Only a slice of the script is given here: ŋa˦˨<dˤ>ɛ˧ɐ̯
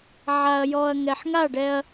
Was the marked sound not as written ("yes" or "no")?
yes